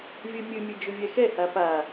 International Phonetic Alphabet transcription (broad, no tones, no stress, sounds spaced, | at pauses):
vʲ ɘ mʲ ɨ mʲ ɨ d͡ʒ ʊ vʲ ɛ x ɛ h a p a